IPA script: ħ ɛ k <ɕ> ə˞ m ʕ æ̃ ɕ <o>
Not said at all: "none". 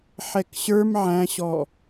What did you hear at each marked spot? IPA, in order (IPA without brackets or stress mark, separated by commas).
ɕ, ɔ